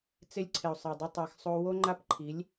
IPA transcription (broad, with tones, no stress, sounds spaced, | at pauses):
t͡s ɪ˦ lʲ ǀʰ ɪ˨ o̯ sˤ ɛ˨ dˤ ɪ˦ tˤ a˧ x sˤ o˦ w o˦ ŋ͡ǃ a˦ p ǃʰ i˨˦ lʲ